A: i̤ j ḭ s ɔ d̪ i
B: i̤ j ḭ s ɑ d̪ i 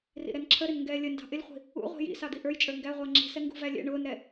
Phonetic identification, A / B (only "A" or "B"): B